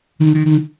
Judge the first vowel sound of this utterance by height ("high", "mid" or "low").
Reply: high